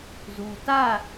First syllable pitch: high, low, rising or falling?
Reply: low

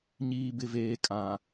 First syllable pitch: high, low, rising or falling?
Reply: low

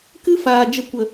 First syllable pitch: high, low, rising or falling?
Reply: high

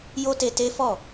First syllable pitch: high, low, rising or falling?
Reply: high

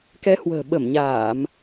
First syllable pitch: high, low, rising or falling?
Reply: rising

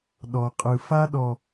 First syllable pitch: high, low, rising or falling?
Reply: low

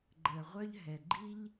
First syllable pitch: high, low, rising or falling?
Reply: low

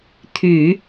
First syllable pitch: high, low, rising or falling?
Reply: low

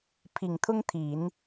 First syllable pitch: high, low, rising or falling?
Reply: low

